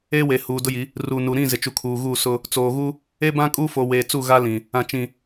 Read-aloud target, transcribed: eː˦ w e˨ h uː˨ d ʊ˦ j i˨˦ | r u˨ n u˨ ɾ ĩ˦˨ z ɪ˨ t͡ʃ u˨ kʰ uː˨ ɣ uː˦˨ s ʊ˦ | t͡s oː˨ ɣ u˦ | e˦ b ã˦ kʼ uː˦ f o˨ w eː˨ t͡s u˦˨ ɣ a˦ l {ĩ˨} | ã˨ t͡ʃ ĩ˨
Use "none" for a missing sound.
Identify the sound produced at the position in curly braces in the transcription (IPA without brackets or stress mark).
ĩ˨